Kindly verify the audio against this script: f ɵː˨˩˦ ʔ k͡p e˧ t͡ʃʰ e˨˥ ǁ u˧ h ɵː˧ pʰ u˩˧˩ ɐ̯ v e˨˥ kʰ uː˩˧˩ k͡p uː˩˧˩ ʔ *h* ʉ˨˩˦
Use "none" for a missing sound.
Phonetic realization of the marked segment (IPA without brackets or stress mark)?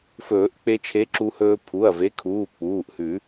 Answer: h